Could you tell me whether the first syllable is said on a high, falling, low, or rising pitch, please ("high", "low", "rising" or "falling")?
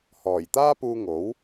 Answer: low